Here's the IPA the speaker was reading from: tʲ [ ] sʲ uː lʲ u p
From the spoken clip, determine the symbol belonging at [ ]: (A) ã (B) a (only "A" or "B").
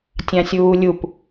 A